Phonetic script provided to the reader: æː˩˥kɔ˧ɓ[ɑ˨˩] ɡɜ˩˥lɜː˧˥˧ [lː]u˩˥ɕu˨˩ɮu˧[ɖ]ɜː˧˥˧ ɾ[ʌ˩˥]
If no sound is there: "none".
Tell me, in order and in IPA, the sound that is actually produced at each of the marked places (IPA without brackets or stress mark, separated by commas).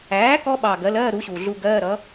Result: ɑ˨˩, ɾ, ɡ, ʌ˩˥